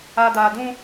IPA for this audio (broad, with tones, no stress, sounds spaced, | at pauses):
a˨ d aː˨ d ũ˦